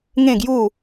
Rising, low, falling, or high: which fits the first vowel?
falling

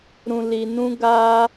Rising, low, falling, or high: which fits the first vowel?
low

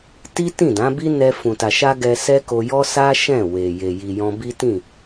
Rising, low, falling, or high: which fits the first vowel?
high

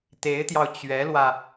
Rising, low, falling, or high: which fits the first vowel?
rising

